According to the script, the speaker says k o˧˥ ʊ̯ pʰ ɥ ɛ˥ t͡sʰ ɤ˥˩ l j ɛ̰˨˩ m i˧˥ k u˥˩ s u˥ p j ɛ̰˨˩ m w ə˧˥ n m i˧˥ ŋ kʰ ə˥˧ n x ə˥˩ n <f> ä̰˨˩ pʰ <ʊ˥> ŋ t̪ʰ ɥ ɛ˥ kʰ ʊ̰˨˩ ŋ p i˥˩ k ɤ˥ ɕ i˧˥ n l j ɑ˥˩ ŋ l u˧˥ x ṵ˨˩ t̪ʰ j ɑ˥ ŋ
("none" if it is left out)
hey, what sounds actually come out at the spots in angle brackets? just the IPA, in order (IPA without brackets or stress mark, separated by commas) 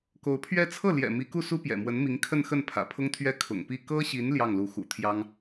pʰ, ʊ˥